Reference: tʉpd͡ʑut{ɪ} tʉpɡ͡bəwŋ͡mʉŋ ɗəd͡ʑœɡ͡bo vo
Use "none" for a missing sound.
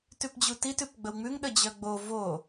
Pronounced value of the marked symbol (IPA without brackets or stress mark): i